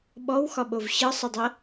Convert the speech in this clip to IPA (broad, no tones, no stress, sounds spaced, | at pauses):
ɓ ɔ w x ɒ ɓ o v ɕ ɤ sˤ ɤ dˤ ɤ